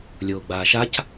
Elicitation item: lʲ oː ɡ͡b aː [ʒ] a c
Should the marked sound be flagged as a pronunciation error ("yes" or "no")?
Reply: yes